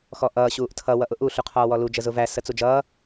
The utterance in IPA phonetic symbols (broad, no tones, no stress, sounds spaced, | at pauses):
x ɔ ʔ ʌː ɕ uː ʔ tʰ ʌ w ʌ ʔ ʊ ʔ u ɬ u qʰ ɔː w ɔ l u d͡ʒ ə z ʊ v æ s ə t͡s u d͡ʒ ʌː